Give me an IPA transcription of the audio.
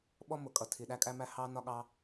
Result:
ɓɔ˥ mʊ˩kʼʌ˩ tʰi˩ɗæ˧kʼæ˧mæ˧ hɑ˥ nɒ˥ɠɑ˥

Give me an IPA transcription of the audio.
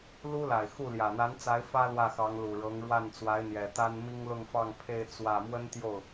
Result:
lu˥la˨˩ɪ̯xu˥˩ljä˨˩ n̪a˧˥nt͡sa˧˥ɪ̯ fä˥ lwä˥˩xɑ˧˥ŋ lu˨˩ ɻɤ˧˥ŋɻwa˥˩nt͡swa˧˥ɪ̯n̪jɛ˨˩ t̪a˥nmi˥ŋlʊ˥˧ŋ fɑ˥˧ŋpʰe˥˧ɪ̯ t͡swä˥˩ mwə˥nt̪jo˥˩ʊ̯

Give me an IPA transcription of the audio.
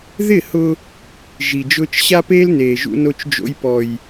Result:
ðɪ˦˨hʊ˦ | ʒi˨d͡ʒʊː˦t͡ʃ ɕa˦peː˦lneː˨ ʒṵ˦no˦t͡ʃ d͡ʒo̰˦j pɔ˦j

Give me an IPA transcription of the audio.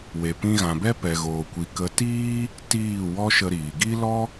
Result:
we˨pĩ˧ɣã˨bɛ˦ pɛ˨ɣoː˨kʷi˨kə˨˦ tiː˦ | tiː˦˨ wɔ˦ʃə˧ɾiː˨ ɡi˦lɔ˦

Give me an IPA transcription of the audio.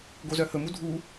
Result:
ɡozœhɵmu dʱu

